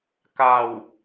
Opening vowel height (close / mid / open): open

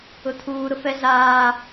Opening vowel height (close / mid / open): close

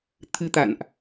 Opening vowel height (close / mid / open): close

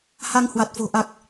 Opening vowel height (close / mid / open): open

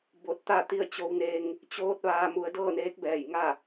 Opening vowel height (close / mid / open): mid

